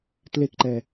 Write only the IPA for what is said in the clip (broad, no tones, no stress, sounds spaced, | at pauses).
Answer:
t l e k ǃ ɛ